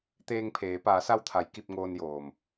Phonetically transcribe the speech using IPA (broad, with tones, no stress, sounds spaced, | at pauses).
t̪ eː˧ ŋ pʰ eː˩˧ p aː˩˧ s a˧ w t̪ʰ a˩˧ j k i˧ p̚ ŋ oː˧ n j oː˩ m